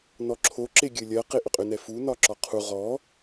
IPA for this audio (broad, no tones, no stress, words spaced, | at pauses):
nɔǁʰo ǁeɡʲɘlʲɜ qeʔʏqʼʏ nɛfu nɒǁɒqʰu ʁɔ